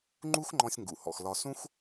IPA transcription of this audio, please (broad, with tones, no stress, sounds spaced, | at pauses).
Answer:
ŋ͡ǃ u˥ x ŋ͡ǃ ɔ̃˧ sʲ ŋ ɡ ṵ˩ h ɔ̰˩ x l ɒ˧ s ũ˥ x